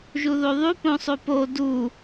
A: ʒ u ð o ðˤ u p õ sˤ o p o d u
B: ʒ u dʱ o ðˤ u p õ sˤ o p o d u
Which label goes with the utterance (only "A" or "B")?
A